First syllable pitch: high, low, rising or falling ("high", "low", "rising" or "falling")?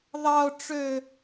high